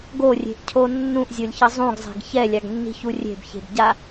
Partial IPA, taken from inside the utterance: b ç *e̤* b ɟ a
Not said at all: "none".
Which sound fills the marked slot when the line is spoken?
e̤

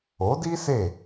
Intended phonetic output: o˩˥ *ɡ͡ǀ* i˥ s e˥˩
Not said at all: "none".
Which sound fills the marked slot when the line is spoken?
d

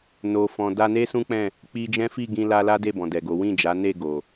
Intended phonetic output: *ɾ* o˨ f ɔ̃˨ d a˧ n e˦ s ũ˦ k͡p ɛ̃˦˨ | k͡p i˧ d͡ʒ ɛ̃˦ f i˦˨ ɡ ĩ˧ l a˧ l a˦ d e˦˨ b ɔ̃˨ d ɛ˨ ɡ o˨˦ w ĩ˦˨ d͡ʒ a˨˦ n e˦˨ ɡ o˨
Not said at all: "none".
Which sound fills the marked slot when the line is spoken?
n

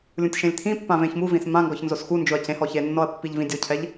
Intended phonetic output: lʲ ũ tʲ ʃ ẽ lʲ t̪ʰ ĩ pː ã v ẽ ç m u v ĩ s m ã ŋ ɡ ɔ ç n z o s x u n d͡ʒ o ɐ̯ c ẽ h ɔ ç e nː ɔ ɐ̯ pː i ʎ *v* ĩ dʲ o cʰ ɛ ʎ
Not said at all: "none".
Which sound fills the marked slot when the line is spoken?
v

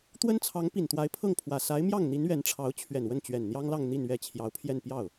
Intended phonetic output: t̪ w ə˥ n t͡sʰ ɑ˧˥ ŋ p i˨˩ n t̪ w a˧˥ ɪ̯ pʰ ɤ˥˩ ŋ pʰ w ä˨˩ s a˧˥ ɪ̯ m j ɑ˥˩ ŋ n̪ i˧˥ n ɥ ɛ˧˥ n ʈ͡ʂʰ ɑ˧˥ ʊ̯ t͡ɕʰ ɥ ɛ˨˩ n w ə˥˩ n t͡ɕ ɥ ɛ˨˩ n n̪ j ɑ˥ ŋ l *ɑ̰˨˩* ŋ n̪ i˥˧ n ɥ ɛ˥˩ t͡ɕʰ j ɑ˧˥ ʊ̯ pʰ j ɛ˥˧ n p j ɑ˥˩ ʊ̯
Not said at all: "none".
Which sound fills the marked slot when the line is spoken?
ɑ˥˧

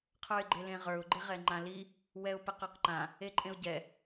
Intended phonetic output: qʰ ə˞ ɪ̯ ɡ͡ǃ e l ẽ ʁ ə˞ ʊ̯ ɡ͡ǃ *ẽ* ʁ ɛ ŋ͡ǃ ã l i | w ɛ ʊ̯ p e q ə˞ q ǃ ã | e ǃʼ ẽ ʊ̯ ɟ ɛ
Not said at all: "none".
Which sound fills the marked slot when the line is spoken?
e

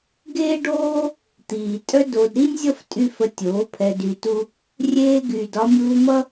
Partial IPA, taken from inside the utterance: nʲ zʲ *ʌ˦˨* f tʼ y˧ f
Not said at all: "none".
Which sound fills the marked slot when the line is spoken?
ʌ˦˨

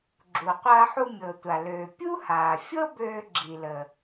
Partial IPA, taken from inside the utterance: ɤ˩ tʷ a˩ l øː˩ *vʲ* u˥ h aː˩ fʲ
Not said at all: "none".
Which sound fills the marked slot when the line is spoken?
pʲ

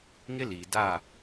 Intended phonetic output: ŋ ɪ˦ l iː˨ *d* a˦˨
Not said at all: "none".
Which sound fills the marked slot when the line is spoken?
d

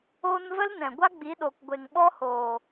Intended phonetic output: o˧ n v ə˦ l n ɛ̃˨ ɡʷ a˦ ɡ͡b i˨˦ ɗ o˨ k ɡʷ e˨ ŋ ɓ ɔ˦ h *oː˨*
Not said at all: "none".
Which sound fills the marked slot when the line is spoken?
oː˨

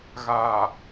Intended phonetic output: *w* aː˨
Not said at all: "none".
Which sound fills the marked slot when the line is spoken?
ɣ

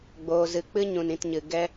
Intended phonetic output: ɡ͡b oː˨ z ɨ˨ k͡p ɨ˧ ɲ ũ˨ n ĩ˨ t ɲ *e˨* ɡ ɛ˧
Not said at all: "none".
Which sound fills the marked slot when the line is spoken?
ɨ˨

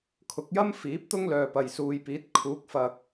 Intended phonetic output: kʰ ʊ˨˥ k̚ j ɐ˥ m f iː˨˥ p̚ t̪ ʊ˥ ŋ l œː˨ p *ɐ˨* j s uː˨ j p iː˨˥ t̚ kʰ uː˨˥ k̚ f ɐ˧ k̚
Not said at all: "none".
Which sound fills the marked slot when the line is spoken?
ɐ˨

